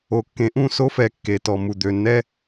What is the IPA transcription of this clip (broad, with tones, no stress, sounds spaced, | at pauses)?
o˨ kː ẽ˨ ʔ ũ˦˨ s o˦ f ɛ˨ kː e˨ t ɔ˨ m u˨ d̪ ø˨ nː ɛ˦